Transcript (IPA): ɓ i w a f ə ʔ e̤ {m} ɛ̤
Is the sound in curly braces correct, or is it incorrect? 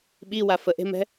correct